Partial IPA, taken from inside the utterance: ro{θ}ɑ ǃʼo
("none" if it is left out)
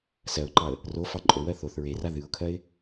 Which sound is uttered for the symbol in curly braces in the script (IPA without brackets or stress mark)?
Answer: f